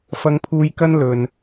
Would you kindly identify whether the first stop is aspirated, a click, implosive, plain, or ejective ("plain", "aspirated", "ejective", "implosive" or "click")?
aspirated